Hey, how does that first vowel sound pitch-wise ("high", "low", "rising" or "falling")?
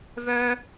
high